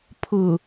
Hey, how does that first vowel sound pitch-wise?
low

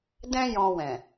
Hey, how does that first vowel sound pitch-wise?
high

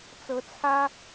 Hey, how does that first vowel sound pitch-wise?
rising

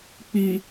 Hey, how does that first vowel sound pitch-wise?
low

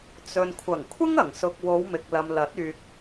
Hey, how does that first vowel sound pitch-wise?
low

